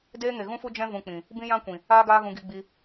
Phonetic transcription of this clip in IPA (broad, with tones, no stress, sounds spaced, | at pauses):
d eː˦ ŋ e˨ ɣ ũ˦ f u˦ d͡ʒ ɛ̃˦ v ũ˧ k͡p ĩ˨ | b ĩ˦ j ã˦ kʷ ĩ˨ | aː˦ ɡ aː˦ ɣ ũ˧ ɡ i˧ ɡ͡b i˧